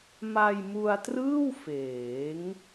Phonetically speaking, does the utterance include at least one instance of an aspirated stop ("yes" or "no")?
no